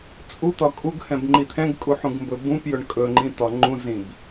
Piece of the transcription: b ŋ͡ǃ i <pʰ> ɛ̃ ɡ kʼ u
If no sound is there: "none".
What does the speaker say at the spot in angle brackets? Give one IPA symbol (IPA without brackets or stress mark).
t̪ʰ